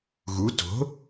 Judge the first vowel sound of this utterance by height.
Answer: high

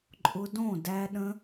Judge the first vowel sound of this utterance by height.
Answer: high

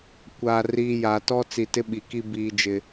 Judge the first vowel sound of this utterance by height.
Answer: low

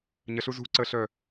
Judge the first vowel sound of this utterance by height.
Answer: mid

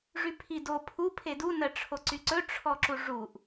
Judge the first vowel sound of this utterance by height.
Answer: high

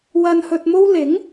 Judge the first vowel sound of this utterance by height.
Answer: low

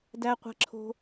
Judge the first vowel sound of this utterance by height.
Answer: low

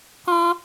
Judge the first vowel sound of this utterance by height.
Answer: mid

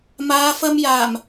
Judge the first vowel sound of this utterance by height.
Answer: low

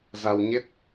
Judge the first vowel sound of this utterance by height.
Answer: low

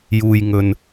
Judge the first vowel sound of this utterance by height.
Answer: high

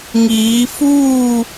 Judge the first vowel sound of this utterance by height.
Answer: high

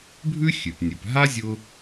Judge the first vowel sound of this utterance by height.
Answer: high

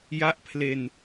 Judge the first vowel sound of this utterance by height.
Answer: low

